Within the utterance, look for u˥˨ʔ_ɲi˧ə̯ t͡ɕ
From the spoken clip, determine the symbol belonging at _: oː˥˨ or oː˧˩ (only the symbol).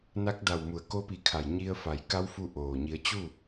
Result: oː˧˩